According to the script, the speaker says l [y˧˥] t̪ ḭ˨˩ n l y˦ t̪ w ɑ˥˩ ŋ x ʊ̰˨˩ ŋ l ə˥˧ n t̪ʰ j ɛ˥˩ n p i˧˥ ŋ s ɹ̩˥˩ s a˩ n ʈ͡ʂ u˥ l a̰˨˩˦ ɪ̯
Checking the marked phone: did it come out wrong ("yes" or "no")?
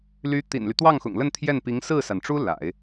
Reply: no